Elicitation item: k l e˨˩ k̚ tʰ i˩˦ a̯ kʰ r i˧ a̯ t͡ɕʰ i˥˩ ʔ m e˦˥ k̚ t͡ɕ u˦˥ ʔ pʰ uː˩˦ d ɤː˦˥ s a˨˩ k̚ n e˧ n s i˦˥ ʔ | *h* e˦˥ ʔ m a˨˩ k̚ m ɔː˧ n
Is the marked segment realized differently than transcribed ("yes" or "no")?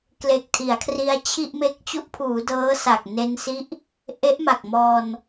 yes